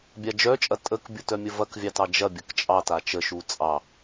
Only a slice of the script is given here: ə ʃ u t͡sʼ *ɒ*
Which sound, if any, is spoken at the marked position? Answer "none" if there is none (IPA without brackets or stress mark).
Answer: ɑ